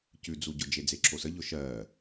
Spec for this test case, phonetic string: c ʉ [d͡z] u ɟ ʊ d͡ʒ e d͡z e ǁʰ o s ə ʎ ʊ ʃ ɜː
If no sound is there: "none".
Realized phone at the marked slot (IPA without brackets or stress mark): d͡z